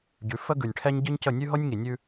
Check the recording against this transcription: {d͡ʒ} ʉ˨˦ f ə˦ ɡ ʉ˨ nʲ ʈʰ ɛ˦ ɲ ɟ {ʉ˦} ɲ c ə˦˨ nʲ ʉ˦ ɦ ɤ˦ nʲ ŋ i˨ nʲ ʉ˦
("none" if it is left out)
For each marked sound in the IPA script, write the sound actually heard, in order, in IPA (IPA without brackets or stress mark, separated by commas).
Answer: ɟ, ɨ˦